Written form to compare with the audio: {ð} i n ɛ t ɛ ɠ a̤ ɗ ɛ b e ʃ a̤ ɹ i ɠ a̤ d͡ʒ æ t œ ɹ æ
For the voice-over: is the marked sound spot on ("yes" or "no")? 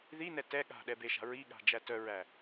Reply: yes